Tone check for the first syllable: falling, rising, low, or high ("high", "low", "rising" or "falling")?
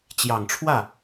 low